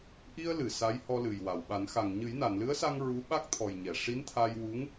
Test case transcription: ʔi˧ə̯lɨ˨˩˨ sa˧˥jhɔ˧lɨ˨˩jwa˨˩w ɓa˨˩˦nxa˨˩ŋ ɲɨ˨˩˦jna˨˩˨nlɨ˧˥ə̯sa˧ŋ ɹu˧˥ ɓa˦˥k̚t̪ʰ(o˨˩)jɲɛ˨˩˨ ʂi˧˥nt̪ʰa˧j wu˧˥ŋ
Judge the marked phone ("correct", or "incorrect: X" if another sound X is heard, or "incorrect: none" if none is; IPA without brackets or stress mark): incorrect: ɔ˨˩